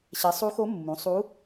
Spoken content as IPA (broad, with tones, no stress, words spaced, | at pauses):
ɕɛ˩˥sˤu˧˥xo˧˥ mːũ˩˥ sˤu˧˥